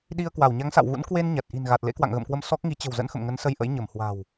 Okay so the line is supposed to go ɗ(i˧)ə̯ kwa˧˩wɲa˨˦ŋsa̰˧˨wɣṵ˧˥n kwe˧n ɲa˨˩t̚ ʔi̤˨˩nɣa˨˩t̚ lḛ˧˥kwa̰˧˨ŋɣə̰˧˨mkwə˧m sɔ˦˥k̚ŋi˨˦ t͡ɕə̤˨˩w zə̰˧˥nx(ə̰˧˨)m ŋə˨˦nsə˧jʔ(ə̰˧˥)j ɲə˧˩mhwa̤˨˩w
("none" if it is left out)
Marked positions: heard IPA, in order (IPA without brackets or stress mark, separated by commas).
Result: i˧, ə̰˧˨, ə̰˧˥